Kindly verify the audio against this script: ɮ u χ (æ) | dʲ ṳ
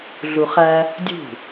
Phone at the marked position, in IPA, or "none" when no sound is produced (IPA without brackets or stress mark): æ